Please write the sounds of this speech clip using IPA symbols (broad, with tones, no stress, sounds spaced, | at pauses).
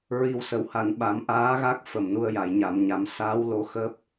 ɹ i˨˩ w s ə˨˩˨ w h a˨˩˨ n ɓ a˨˩˦ m ʔ aː˧˥ ɣ a˦˥ k̚ f ə˨˩ m n u˧ ə̯ j a˨˩˨ j ɲ a˨˩˨ m ɲ a˨˩˦ m s aː˧˥ w l o˧˥ x əː˦˥ p̚